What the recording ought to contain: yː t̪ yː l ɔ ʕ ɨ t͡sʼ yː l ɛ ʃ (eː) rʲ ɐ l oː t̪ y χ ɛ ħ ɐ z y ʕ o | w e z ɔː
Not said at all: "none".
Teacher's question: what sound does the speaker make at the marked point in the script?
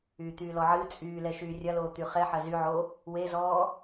yː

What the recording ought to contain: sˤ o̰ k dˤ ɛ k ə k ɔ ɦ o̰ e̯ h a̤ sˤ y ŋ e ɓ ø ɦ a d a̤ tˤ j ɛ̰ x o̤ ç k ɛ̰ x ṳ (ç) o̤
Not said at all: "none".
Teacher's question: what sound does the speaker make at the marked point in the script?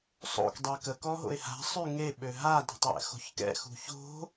ç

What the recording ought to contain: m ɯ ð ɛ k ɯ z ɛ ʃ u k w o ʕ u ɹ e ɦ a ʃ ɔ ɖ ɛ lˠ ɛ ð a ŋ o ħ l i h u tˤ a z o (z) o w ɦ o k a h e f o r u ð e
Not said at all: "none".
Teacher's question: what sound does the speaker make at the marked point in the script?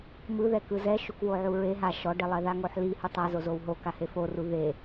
z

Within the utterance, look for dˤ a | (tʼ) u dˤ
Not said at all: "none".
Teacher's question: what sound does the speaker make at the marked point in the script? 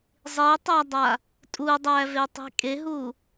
tʼ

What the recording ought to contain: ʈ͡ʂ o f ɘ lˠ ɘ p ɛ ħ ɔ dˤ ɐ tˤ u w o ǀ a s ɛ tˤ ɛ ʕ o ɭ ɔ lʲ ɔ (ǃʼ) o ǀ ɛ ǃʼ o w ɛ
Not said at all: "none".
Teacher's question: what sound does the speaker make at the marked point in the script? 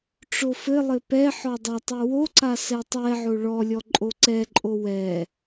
ǃʼ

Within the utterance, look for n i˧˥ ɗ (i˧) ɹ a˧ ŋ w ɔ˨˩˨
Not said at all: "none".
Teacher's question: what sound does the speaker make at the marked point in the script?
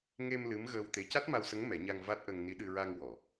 ɨ˧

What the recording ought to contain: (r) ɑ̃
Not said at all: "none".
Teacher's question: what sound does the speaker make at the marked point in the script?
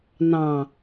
n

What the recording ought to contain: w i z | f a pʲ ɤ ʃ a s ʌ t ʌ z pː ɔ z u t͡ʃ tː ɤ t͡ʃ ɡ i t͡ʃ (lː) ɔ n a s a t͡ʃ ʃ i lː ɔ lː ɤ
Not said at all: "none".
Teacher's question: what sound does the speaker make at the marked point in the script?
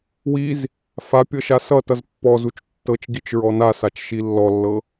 ɹ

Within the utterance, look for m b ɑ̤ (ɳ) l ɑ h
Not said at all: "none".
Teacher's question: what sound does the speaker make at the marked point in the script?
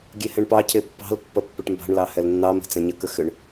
ɳ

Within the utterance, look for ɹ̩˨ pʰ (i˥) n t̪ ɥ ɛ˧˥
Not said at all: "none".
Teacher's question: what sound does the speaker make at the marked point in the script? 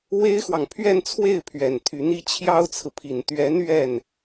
i˨˩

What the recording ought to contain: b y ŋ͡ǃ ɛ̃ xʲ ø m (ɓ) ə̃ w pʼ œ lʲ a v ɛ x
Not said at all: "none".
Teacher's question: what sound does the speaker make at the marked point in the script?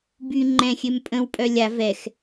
pʼ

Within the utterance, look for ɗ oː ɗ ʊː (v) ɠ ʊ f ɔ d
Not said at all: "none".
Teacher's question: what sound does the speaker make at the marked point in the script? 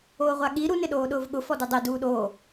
v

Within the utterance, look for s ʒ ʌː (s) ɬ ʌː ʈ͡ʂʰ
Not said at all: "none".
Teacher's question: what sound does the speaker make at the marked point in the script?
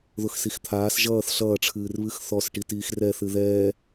θ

